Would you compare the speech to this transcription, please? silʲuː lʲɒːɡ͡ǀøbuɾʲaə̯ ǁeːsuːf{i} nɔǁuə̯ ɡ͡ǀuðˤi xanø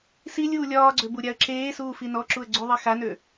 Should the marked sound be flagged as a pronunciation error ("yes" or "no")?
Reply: no